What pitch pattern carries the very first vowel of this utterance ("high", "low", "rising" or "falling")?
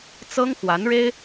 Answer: high